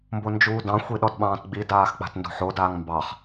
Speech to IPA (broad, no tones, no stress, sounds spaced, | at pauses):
m b o n d͡ʒ uː d ɑ̃ xʷ i ɗ ɔ d ɓ ɑ̃ː t ɡ͡b i d aː x k͡p a̤ t n d o̤ ħ o d aː ŋ m b ɑ χ